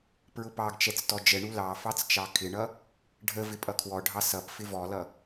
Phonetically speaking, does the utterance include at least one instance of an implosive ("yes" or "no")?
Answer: no